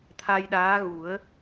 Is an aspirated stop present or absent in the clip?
present